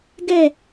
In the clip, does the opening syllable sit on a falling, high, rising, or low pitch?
falling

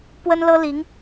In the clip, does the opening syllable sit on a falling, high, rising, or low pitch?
high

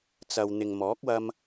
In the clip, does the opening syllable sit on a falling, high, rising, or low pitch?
low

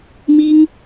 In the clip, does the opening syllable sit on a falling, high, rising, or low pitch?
high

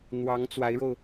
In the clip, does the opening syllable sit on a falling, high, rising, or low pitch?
rising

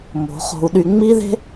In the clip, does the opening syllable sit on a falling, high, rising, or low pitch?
rising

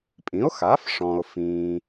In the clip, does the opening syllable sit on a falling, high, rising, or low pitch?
rising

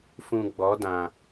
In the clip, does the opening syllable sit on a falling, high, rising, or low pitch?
low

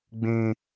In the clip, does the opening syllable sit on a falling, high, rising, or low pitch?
high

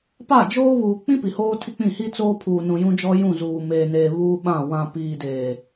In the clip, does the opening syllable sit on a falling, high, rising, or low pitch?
falling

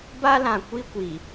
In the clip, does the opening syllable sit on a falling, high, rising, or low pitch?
high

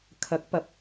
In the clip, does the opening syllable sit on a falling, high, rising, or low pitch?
rising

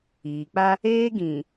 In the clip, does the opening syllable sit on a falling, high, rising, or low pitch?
low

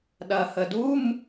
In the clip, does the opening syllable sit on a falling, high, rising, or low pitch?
low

